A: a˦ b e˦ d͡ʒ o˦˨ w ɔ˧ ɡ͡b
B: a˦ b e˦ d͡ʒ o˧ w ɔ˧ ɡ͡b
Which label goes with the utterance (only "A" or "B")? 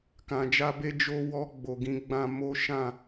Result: B